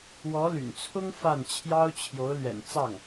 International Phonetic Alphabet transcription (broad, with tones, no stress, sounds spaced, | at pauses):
w ɔ˧˥ l y̰˨˩ n t͡sʰ ʊ˥ ŋ f a˥˩ n t͡ɕʰ j ɑ˥ ʊ̯ t͡ɕʰ j o˧˥ ʊ̯ l ɥ ɛ̰˨˩ n t͡s ɑ˥˩ ŋ